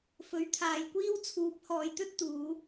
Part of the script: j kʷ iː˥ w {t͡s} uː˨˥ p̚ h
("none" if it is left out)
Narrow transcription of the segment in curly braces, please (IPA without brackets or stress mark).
t͡sʰ